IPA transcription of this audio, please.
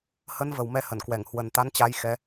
h ə˨˦ n v ə˨˩ w m ɛ˧ h ə˧˩ n k w ɛ˧˩ ŋ h w ə˨˩ n t̪ a˨˦ n t͡ɕ a˨˦ j x ɛ˨˦

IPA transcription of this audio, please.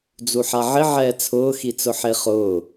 d͡z u ħ a ʕ ɪ ʕ ɛː t͡sʰ ʊː x i t͡s ʊ ħ e χ ʊː

